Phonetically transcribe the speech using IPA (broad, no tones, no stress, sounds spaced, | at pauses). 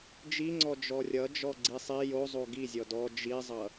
d͡ʒ i ŋ͡ǀ ɔ d͡ʒ ɔ rʲ ʌ d͡ʒ ɔ ɡ͡ǀ i sˤ i j o zˤ o ɡ i zʲ ɔ d ɔ d͡ʒ i zˤ ʌ